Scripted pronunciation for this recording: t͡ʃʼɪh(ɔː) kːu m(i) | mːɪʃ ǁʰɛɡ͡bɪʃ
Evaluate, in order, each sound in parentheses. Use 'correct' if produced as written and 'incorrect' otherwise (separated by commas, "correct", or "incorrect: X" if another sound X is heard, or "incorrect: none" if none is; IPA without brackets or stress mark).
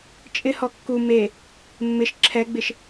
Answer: incorrect: ɔ, incorrect: e